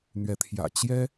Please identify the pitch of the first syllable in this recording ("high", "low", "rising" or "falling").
rising